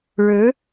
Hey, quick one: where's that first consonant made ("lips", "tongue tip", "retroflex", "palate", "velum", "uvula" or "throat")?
retroflex